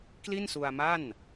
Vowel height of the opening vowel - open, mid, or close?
close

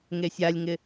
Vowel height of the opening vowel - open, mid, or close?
mid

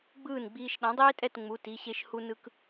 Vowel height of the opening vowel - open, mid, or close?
close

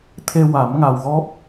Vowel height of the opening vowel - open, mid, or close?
mid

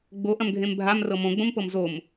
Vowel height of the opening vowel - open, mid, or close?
mid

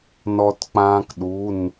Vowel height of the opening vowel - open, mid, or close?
mid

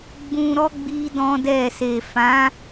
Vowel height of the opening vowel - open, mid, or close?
close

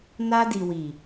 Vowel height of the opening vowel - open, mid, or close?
open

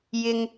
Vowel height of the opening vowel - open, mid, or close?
close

